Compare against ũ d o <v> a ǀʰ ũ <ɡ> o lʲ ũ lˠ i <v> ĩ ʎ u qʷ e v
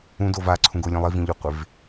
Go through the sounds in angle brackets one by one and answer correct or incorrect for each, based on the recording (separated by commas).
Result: correct, correct, correct